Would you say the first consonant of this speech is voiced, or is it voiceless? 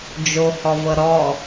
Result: voiced